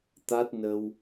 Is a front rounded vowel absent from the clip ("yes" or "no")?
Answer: yes